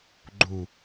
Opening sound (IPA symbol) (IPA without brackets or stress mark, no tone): ɡ͡ǃ